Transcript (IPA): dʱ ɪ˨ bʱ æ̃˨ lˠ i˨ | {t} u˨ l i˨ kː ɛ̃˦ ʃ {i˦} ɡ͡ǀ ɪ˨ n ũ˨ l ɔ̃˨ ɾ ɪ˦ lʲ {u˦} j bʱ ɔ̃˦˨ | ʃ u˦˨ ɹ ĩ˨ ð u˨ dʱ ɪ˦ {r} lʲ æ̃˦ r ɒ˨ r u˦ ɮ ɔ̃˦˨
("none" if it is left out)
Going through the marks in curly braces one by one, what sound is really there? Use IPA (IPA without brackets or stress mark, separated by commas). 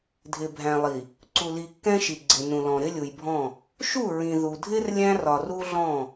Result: ǀ, i˨, u˨, r